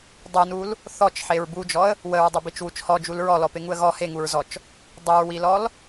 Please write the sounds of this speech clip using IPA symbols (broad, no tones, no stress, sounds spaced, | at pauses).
dˤ u n u l | θ ɔ t͡ʃ ħ e ɹ b u d͡ʒ ɔ ə̯ | w ə ɹ dˤ ʊ b i t͡ʃ w u t͡ʃ h ɔ d͡ʒ u l ɹ ɔ l ɔ p e ŋ u ə̯ ɣ ɔ h e ŋ u ɹ z ɔ t͡ʃ | dˤ ʊ ɹ w i l ɔ l